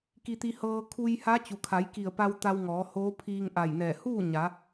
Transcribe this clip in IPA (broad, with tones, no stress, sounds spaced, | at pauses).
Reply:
k i˧ t̪ i˧ h ɤː˧ kʰ u˧ j h a˧˥ t͡ɕ u˩ kʰ a˩˧ j k i˧˩ ə̯ p a˧ w t̪ a˧ w ŋ ɔː˩˧ h oː˧˥ pʰ iː˧ ŋ ʔ a˧˩ j n ɛː˧˩ h uː˥˨ ɲ a˩˧